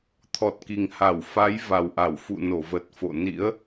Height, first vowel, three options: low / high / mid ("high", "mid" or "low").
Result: mid